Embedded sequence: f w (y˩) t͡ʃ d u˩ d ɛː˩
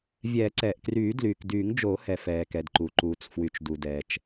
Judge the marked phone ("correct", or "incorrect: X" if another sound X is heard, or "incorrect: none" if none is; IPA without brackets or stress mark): correct